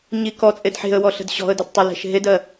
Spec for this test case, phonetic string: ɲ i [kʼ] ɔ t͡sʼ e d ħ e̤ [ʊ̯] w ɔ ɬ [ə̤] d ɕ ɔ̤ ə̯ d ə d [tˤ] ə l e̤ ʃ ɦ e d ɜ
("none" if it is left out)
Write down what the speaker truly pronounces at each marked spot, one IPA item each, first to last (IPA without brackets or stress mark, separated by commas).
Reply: k, ə̯, ə̤, tˤ